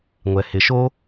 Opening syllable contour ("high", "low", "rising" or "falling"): low